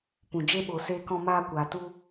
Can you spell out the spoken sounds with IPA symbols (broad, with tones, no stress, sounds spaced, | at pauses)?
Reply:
p ũ˨ d͡ʒ e˧ ɓ o˨ s eː˧ k ɔ̃˧ m aː˧ kʷ aː˨ t u˧